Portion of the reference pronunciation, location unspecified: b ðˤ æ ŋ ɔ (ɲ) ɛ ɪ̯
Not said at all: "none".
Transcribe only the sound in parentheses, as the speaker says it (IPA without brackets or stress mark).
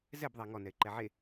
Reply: n